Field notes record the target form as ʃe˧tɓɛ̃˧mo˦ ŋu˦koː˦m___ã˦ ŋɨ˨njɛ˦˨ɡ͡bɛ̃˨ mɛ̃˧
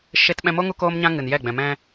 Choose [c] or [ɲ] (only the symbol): ɲ